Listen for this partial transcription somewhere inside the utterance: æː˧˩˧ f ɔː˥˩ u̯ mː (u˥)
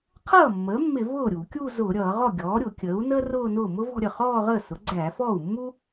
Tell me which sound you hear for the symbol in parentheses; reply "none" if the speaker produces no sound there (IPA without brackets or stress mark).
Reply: u˥